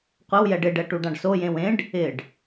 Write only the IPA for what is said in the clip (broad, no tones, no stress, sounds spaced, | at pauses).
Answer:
qʷ ɪ w j ɛ ɖ ɪ ɖ ɛ ʈ u ɖ ã ɖ s o j ẽ w ẽ ɖ | ɪ ɖ